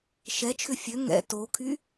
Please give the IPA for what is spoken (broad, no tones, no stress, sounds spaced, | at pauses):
ʃ ɛ t͡ʃʰ ʏ fʲ ø ŋ ɛ̰ t o kʰ y